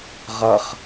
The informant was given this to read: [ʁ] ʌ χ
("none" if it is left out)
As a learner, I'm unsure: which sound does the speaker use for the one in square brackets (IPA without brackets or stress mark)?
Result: ʁ